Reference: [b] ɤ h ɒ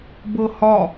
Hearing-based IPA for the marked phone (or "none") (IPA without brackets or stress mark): b